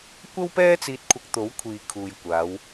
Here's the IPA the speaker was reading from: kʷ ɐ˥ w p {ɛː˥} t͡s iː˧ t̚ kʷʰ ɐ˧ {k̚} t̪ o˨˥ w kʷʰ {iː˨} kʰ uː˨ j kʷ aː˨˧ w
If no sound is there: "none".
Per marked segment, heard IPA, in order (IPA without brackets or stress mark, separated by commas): ɛː˥, k̚, iː˨